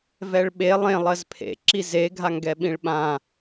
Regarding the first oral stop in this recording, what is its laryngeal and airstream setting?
implosive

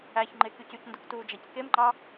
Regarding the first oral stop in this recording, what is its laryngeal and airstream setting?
click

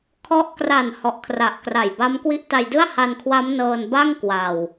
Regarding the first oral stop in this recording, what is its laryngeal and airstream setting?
aspirated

